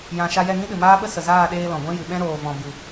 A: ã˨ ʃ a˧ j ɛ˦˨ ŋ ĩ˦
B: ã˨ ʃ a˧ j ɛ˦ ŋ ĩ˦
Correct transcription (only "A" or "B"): A